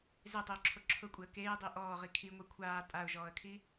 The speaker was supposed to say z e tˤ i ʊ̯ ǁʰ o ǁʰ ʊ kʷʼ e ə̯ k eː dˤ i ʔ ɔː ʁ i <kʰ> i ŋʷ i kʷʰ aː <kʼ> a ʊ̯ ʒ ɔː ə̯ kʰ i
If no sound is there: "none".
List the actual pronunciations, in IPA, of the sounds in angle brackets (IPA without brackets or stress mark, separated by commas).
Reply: kʰ, tʼ